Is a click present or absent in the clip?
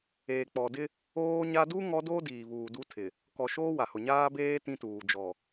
absent